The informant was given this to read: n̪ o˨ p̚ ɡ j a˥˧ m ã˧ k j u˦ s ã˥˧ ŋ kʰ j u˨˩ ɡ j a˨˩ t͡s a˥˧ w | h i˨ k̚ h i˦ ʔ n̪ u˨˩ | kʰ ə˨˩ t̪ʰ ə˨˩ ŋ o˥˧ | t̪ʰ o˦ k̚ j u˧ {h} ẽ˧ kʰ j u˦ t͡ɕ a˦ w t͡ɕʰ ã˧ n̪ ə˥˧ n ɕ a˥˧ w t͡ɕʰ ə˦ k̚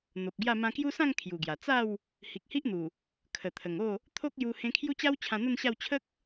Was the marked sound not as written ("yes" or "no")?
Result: no